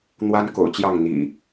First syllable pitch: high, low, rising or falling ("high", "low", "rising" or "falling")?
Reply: high